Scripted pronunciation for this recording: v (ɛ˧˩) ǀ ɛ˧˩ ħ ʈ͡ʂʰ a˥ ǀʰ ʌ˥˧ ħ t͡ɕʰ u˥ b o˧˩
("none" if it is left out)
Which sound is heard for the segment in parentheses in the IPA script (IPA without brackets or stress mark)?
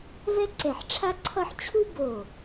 ɛ˥